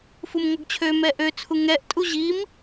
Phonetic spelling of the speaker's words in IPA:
f u m ŋ ɔ ɡ t͡ɕʰ ø m ɛ ʔ ø t͡sʰ u ŋ ɛ ʔ tʼ u ʑ i m

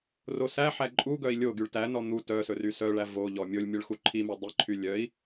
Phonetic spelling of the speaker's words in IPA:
r o s æ ħ æ ǃʼ u ɡ œ i̯ lʲ o ɡ y ɭ t æ n ɔ n̪ u t œ s ɵ r y s œ ɭ æ v o ʎ ɔ mʲ o lʲ mʲ ɵ ɭ x u ǃʰ i m œ dˤ i ǃʰ y lʲ œ i̯

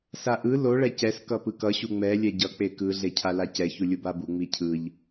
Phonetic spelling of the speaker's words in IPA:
s a ʔ ɯ l o ɭ ɛ c ɛ s k ʌ p ɯ k ʌ ɕ u ŋ͡m ɛ lʲ ɛ ɟ ʌ k͡p e k ɯ ɮ e cʰ a l a c ɛ ç u lʲ u b a b u ŋ͡m i cʰ ɯ ʎ

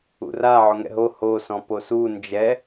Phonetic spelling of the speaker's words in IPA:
ṵ r a ʕ o ŋ ɛ̰ ɦ o h o s ɔ̃ p o s u n d͡ʒ ɛ

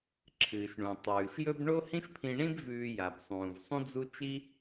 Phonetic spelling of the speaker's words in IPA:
ǁʰ ɨː˩ ʃ ɳ ũ˩ tˤ ʉː˩ ʃ j ɵ˥ b ɳ o˥ h ĩ˥ ʃ pʰ ĩ˧ ɳ ĩ˥ b v ʉː˧ j a˩ b sˤ ũː˩ v sˤ ũ˥ d͡z u˥ t͡ʃ i˥

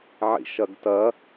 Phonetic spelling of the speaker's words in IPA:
ʕ ḭ ʃ ɐ ɡ t ɐ

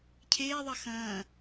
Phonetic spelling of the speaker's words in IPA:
cʰ eː ðˤ ɐ x ɐ̃ː

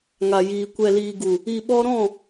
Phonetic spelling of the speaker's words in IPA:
ŋ a˨ j iː˨ kʷ ɛ˨ l iː˨ ɡ u˨ | i˨ ɓ ɔ˧ ɾ ɔ̃˦˨

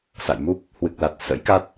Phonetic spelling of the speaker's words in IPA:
s a̰˧˨ j m u˦˥ p̚ | h w ɨ˨˩ k̚ l a˨˩ t̚ s ə̰˧˥ j k a˦˥ t̚

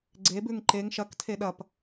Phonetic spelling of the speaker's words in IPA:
ɡ͡ǀ e b ʉ ŋ ǃ e ŋ ʃ ɐ k tʰ e ɗ ɐ p

